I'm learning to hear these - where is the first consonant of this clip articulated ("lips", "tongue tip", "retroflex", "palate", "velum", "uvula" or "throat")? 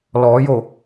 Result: tongue tip